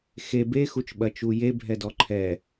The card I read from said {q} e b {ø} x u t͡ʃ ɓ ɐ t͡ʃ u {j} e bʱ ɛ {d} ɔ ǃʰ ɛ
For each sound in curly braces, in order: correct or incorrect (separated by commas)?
incorrect, incorrect, correct, correct